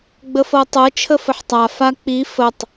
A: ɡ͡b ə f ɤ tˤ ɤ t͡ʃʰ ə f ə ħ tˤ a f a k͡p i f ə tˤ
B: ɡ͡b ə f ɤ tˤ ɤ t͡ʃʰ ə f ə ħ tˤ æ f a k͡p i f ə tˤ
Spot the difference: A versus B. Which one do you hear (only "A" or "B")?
A